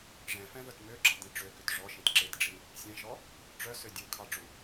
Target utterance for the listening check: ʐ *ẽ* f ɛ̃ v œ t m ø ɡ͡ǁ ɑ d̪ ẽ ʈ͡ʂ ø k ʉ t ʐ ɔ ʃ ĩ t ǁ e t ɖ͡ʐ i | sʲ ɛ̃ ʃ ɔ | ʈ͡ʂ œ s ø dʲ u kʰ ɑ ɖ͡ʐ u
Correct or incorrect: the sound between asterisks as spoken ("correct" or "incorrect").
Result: incorrect